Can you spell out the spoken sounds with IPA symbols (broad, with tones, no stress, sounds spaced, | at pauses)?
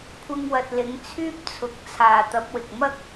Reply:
kʷʰ ɪ˧ ŋ w ɐ˨ t̚ l ɪ˨˥ ŋ t͡sʰ yː˥ p̚ t͡sʰ ʊ˨˥ k̚ t͡sʰ aː˨ t̪ ɐ˨˥ p̚ w ɪ˨ k̚ m ɐ˥ k̚